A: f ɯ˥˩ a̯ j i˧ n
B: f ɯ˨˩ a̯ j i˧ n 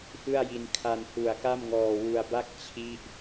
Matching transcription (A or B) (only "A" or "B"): A